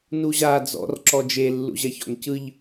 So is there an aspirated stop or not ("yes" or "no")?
no